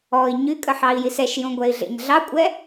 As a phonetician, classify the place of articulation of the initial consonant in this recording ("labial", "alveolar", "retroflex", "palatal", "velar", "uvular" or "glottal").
palatal